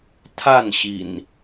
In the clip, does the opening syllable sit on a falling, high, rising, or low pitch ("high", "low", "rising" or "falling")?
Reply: falling